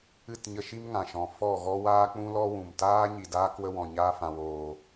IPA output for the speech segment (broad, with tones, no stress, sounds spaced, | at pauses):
ɨ˦˨ t ɲ ə˧ ʃ i˦ m ŋ ã˨ ʃ ɔ̃˨ f ɔ˦˨ ɣ ɔ˦ w aː˦ k͡p ũ˦ l ɔ˦ w ũ˨ m t aː˦ ɲ i˨ d aː˦ k w ə˦ w ɔ̃˨ ɲ aː˦ f ã˧ w oː˧